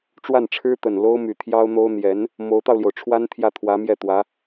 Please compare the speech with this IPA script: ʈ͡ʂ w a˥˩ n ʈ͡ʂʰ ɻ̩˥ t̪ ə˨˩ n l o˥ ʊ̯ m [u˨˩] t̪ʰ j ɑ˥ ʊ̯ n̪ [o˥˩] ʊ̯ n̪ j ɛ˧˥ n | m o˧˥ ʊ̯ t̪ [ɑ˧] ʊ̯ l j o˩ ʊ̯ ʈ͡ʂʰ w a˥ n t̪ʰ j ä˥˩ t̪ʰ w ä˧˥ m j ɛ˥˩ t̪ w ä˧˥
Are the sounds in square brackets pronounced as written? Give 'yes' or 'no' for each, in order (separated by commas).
no, no, yes